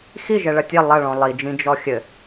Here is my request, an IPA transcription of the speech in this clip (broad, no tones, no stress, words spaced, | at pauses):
xi ʒɛɭɐtʲe lˠɐɭɔ̃ lˠid͡ʒĩ d͡ʒɔxʲɘ